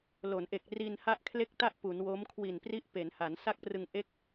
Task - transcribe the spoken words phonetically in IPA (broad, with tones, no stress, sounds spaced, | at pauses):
l o˩˦ n ʔ e˨˩ k̚ r i˧ n h a˥˩ ʔ kʰ l e˥˩ k̚ t a˥˩ ʔ p u˩˦ n w o˦˥ m kʰ w i˨˩ n p r i˦˥ ʔ p e˩˦ n h a˩˦ n s a˥˩ k̚ p r ɯ˧ ŋ ʔ e˥˩ k̚